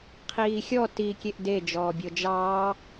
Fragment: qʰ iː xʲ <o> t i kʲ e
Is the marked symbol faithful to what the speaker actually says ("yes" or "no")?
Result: no